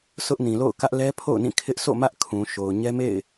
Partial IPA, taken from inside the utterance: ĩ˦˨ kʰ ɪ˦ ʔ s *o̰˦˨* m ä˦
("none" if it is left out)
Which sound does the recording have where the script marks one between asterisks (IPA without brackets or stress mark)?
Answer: o̰˦˨